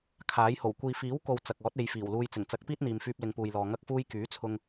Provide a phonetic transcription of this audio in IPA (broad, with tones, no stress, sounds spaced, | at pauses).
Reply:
kʰ aː˨˥ j h o˨˩ w kʷ iː˨ f iː˨˥ w k o˨ w t͡s ɐ˨ k̚ ɔː˨˥ t̚ e˨˧ j f iː˨˩ w l uː˧ j t͡s ɪ˨˩ ŋ t͡s ɐ˨˥ k̚ p iː˥ t̚ n̪ iː˨ m f yː˧ p̚ l ɪ˨˧ ŋ p uː˨ j l ɔː˨ ŋ ɐ˥ k̚ f uː˥ j k yː˨˥ t͡sʰ ʊ˧ ŋ